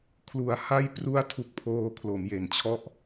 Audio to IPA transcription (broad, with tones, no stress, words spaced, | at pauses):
kʰlu˨˩a̯ ha˥˩j pru˥˩a̯tʰu˨˩k̚pʰoː˧ kʰlo˩˦mje˩˦nt͡ɕʰɔ˥˩ʔ